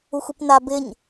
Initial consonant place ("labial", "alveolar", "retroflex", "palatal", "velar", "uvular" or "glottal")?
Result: velar